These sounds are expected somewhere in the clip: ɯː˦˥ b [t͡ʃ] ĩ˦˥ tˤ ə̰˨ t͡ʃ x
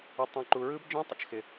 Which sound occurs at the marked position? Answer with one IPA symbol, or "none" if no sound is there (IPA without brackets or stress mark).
d͡ʒ